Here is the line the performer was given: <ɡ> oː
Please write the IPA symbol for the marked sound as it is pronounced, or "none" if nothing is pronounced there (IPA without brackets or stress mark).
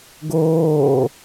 ɡ